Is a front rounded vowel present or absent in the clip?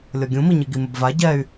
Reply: present